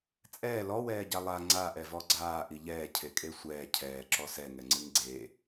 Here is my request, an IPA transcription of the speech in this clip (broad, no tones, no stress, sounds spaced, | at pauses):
t͡sʼ ɛː l ɔ w ɛː ɟ a lˠ a ŋ͡ǀ aː ʔ ɛ v ɔ ɡ͡ǀ aː ʔ i ʎ ɛː cʰ e kʼ e sʷ ɛː cʰ ɛː ǁ ɔ s ɛ ŋ ɛ ŋ͡ǀ ɨ ŋ ɡ͡ǀ e